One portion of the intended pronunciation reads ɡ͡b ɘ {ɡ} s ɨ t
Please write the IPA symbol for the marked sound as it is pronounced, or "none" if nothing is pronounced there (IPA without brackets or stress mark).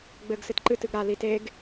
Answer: ɡ